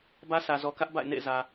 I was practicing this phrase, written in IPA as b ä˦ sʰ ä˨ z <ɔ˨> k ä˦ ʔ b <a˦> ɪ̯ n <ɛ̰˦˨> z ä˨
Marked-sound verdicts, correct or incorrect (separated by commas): correct, incorrect, incorrect